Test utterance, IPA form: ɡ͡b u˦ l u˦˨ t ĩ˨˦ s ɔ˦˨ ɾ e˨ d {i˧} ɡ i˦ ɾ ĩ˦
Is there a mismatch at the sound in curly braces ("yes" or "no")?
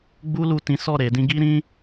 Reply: yes